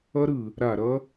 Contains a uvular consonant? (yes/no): no